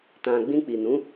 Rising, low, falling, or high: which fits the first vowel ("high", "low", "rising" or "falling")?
low